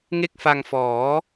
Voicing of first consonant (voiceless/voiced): voiced